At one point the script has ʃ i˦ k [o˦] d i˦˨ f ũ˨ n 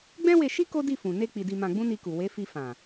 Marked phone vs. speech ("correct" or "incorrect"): correct